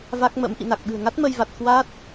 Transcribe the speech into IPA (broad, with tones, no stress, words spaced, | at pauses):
va˦˥k̚mə̰˧˥m ʔḭ˧˨na˨˩k̚ɓɨ̤˨˩ə̯ŋa˦˥t̚ mə˧jva˨˩t̚ kwa˦˥t̚